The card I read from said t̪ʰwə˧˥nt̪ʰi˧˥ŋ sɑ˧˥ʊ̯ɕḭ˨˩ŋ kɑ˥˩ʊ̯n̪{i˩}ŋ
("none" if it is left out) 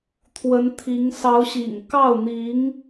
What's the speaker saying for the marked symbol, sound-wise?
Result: i˧˥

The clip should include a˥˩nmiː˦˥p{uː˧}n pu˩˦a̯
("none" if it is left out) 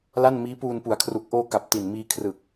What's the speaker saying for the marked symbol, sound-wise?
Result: uː˧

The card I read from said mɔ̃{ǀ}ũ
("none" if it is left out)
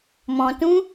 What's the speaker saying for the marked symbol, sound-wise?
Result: t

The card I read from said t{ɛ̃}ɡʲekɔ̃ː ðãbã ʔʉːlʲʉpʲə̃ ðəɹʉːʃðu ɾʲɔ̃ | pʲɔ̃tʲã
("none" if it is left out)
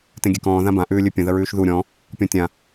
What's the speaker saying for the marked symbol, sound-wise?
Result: ẽ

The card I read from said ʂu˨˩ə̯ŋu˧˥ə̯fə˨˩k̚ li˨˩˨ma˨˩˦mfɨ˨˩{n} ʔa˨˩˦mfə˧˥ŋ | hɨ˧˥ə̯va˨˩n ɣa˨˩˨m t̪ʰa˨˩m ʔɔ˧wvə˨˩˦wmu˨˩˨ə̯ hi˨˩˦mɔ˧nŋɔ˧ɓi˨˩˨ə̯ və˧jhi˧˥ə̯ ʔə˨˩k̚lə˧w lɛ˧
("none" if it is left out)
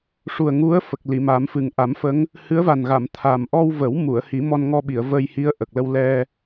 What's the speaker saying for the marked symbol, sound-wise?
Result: ŋ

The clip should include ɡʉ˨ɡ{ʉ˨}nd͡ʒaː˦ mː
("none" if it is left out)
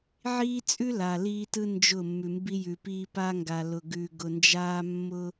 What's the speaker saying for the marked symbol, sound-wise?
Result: ʊ˨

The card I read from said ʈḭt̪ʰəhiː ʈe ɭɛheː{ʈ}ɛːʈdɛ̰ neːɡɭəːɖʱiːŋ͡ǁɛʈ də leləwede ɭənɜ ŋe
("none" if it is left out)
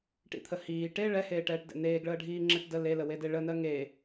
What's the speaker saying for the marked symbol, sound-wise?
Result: ʈ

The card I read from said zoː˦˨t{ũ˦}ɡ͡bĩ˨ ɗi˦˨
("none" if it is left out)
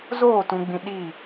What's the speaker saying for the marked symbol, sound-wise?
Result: ũ˨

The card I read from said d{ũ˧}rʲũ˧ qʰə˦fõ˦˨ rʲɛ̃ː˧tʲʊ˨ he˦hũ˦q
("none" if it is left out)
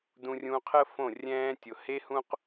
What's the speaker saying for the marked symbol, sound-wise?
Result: ũ˧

